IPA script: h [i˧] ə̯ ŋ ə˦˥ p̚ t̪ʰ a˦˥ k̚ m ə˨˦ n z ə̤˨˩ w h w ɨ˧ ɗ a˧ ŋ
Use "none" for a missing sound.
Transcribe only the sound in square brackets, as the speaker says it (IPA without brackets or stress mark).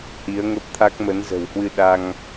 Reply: i˨˦